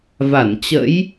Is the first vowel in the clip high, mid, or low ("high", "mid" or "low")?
low